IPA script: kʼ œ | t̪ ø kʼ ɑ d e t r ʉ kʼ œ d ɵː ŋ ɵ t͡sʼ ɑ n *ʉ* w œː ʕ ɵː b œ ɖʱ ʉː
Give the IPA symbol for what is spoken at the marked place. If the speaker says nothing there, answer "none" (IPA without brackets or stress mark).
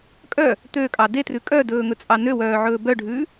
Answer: ø